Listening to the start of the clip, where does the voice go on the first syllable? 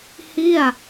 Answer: falling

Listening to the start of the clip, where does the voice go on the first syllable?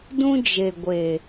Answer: high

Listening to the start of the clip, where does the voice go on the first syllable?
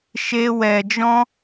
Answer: high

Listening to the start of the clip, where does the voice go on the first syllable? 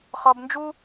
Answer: low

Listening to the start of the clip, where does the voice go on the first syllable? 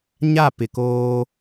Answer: falling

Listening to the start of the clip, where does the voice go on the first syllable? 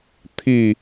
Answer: falling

